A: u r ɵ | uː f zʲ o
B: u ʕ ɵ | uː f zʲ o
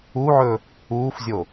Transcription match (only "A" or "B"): B